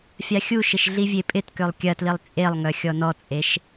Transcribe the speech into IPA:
fʲaxʲuʃɪʃ ɮivʲepʼɪtkølˠ kʲɐtlilˠ t͡sʼelˠŋœ xʲɔnɔt͡sʼeʃ

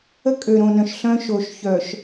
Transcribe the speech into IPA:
ə˦kʼø˨ɾõ˨nœ̃˨ʃ ɬœ̃˦ʃo˨ʃçœ˨ʃ

